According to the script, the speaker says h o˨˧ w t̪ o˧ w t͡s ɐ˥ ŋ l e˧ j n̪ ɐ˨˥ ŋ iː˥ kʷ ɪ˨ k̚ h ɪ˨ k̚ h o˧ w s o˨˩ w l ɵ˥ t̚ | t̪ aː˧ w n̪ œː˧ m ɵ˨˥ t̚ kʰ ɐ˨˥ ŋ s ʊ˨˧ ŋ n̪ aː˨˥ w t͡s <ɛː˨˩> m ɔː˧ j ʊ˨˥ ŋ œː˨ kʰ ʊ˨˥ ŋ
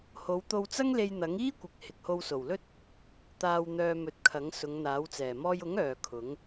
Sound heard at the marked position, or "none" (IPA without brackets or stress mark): ɛː˨˩